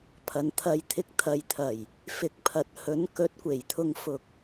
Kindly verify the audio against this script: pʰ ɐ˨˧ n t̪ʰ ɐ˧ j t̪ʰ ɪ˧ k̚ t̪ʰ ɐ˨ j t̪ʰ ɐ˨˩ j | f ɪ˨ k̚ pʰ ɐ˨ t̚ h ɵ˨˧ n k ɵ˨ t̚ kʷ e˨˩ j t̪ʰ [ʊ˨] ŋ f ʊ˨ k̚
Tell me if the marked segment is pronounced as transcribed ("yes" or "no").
yes